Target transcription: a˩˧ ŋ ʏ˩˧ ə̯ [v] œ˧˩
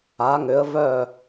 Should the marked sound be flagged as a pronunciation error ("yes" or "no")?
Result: no